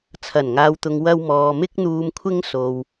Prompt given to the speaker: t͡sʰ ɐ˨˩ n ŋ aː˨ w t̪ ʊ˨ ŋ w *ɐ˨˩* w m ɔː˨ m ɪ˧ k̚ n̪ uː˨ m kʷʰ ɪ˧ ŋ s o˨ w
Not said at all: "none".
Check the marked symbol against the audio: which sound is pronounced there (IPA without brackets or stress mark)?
ɐ˧